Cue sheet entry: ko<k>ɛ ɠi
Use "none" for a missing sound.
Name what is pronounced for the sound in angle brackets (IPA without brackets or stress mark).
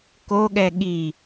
ɠ